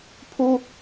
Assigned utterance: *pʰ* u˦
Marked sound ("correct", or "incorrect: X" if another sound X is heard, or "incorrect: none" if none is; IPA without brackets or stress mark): correct